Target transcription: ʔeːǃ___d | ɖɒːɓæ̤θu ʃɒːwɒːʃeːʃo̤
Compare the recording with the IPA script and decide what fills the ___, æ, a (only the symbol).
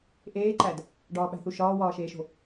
æ